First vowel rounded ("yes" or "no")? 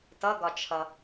no